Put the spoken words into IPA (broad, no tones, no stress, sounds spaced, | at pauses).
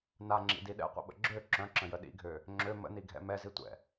n a ŋ͡ǁ ḭ d i ɗ ɛ̰ qʷ ə̰ ɓ ə̰ ɡ͡ǁ ø ǁ œ̃ ǁ ə̃ j ə ɗ ḭ ɡʱ ø | ŋ͡ǁ ø m ə̰ n i ɡʱ ɛ̰ m ɛ z i tʷ ɛ̰